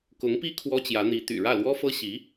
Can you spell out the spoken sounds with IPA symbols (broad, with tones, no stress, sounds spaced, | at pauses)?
k ʊ˧˥ ŋ p i˥ kʰ w ɔ˥ t͡ɕ j ä˧˥ n̪ i˧˥ t̪ y̰˨˩ ɻ ä˥˩ l w ɔ˥ f ɤ˥ ɕ i˧˥